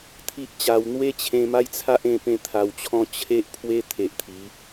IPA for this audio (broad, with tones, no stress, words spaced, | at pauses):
t̪ʰi˦ʔt͡ɕa˧w n̪we˦t͡ɕʰẽ˧ ma˦jt͡sʰa˦ʔ ẽ˥˧pẽ˥˧t̪ʰa˧wt͡ɕʰɔ̃˦ t͡ɕʰe˦ʔpʰwe˦ t̪ʰe˨ʔt̪ʰi˨˦